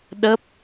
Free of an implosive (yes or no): no